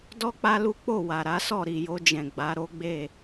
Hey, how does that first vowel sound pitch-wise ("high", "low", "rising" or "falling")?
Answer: high